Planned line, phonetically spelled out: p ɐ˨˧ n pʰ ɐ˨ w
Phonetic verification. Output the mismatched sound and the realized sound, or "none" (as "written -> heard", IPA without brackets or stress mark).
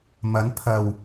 p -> m